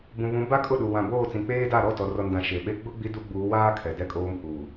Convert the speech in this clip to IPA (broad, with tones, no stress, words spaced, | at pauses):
bũ˨βũ˨˦ ba˦kʼʊ˦˨ɗu˨ wã˨boː˦˨t͡sĩ˨k͡peː˦ da˦˨ ɾɔ˦˨ tɔ˨rɔ˨ndã˨ ʃe˨ɓe˦ ɡ͡bʊ˦ ɡ͡bi˦du˦ɡ͡buː˨˦waː˦ kʰɛ˨dɛ˦kʼoː˦m huː˨